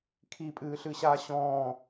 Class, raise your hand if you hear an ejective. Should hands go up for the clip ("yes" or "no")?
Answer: yes